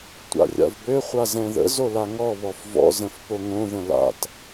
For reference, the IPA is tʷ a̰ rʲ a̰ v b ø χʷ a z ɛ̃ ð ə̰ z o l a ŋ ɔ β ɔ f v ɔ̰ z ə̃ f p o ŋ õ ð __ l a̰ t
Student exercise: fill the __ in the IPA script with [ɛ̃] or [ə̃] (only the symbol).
ə̃